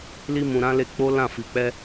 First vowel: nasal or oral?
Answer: oral